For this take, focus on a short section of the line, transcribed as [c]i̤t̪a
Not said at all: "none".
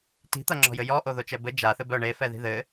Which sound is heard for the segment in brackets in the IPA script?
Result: t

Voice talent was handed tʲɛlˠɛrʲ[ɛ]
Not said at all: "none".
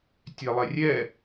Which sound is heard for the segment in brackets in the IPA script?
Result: ɛ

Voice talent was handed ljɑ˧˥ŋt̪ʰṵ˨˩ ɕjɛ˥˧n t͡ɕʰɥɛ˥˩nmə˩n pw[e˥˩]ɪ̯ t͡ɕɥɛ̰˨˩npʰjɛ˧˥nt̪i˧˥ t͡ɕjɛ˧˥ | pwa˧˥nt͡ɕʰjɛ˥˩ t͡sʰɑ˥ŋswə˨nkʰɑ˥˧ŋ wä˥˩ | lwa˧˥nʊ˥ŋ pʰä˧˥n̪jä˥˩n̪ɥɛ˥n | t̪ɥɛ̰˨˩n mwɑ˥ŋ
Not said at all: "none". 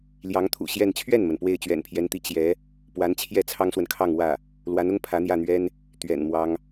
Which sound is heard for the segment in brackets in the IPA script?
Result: e˥˩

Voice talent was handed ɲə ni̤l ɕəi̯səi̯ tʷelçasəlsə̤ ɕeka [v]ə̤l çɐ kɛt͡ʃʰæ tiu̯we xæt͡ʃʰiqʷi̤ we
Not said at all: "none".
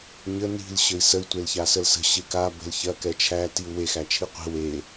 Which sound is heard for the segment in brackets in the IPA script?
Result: b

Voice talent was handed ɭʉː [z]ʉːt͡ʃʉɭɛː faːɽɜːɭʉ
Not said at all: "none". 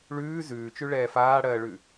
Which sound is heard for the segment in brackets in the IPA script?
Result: z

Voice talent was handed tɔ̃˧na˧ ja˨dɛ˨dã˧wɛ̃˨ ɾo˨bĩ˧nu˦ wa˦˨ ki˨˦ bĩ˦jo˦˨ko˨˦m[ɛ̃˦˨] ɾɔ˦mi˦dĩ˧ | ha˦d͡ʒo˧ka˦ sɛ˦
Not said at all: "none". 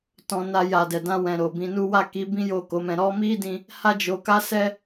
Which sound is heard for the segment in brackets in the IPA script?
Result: ɛ̃˧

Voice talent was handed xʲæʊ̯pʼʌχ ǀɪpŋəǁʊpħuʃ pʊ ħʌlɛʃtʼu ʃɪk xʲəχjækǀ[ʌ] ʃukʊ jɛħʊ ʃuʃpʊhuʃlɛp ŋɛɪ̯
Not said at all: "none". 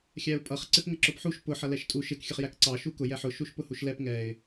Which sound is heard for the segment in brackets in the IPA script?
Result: ɑ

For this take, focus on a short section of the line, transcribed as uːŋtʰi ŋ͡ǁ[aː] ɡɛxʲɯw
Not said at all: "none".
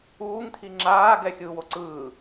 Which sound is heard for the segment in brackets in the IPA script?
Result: aː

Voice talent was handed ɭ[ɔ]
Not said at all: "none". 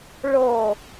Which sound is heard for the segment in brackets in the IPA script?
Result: o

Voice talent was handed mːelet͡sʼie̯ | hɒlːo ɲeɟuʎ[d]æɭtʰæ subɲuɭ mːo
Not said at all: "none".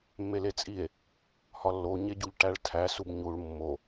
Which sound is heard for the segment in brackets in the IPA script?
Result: ʈ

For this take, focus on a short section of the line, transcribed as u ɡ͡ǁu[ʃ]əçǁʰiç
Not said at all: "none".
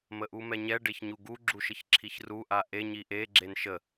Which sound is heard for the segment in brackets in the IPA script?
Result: ʃ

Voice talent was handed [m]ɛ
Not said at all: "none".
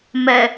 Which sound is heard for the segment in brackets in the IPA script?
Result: m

